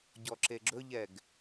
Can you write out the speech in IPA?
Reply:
ɟɔǁeɡ͡ǁɵʎɛɡ

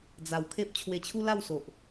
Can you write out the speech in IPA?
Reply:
d͡za˨˩wkʰe˦p̚ t͡ɕʰwe˧t͡ɕʰu˦la˥˧wso˨ʔ

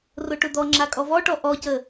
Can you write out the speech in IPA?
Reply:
rʊʈʊd̪ɔŋ͡ǁa kʼɔvɔʈɔ ʔɔcə

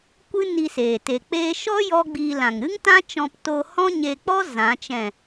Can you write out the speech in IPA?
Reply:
kʷɨ˦ni˧seː˨ te˨ k͡peː˧ʃɔ˦ jɔ˦ɡ͡bi˧ lã˨ŋɾɨ˦ŋtã˦t͡ʃɔ̃˧p to˧hɔ̃˦ɲe˧k͡pɔ˦ zã˨˦t͡ʃɛ̃˦˨

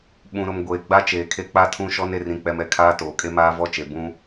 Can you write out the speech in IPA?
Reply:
ɓũ˨ɾʊ˨m ɡʷeː˨ ɡ͡ba˦ t͡ʃeː˨kʰe˦ k͡pa˦tʰũ˦ʃɔ˦n e˨rĩ˨k͡pɛ˨m ɛ˨kʰaː˦ toː˨kʼe˦ maː˦vɔ˦t͡ʃe˨ bũ˦

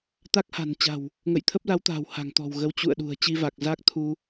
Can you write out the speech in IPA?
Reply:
t̪a˦˥k̚ha̤˨˩nt͡ɕa̤˨˩w | ŋə̰˧˨jt̪ʰə˦˥p̚la˨˦wt̪a̤ː˨˩w ha̤˨˩ŋt̪ɔ̤˨˩w ɣə˨˦wt͡ɕṵ˧˨ə̯ɗṳ˨˩ə̯ t͡ɕi˧va˨˩k̚za˦˥k̚ t̪ʰu˧

